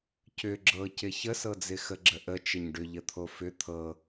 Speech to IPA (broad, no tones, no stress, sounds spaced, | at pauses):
c ʏ ɡ͡ǁ ɤ c ɪ ç ə s ɤ d͡z ɪ x ə ɡ͡ǁ ə ʔ ə t͡ʃ ə ɲ ɖ ʏ ʎ ə t̪ʰ o f ʏ t̪ʰ ɤ